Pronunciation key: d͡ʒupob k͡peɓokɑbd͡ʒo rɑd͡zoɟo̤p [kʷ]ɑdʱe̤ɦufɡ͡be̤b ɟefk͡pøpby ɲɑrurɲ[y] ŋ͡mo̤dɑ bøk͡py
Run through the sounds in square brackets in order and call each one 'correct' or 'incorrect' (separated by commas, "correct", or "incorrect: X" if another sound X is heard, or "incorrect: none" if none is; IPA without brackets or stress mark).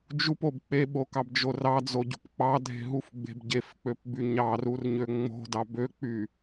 incorrect: k͡p, incorrect: ø